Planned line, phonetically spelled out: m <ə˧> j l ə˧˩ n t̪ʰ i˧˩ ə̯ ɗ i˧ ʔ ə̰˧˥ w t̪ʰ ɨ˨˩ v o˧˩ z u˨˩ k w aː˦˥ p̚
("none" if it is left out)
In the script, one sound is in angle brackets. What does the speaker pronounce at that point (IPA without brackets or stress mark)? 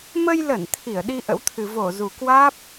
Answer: ə˧